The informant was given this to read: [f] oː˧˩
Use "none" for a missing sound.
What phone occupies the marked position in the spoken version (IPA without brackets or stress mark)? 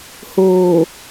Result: h